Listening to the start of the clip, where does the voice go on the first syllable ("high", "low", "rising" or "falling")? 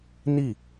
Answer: falling